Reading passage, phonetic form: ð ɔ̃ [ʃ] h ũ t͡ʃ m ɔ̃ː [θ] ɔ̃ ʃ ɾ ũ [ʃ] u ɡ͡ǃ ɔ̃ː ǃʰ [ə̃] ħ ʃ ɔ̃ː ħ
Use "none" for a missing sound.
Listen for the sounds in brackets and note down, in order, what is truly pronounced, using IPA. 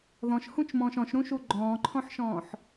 ʃ, ʃ, ʃ, ɔ̃

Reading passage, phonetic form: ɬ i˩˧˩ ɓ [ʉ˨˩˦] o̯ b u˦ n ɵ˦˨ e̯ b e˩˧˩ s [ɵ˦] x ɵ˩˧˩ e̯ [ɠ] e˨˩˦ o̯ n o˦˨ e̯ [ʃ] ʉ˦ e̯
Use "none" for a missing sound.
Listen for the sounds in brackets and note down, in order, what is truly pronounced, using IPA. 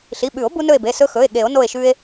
ʉ˨˩˦, ɵ˦, ɠ, ʃ

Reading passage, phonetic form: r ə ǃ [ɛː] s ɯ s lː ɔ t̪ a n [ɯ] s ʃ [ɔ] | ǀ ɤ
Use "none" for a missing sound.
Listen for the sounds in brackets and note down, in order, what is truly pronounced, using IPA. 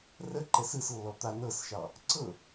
ɛ, ɤ, ɑ

